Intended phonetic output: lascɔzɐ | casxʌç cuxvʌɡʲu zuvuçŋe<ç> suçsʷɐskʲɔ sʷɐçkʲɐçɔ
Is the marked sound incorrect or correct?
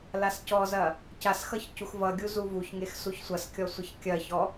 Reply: incorrect